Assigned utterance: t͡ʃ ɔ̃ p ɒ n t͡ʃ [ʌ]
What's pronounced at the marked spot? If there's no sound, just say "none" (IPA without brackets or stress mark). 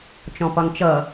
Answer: ʌ